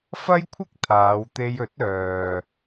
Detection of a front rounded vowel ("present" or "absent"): present